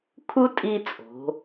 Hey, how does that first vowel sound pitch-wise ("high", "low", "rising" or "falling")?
high